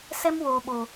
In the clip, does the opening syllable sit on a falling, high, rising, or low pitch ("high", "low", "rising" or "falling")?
high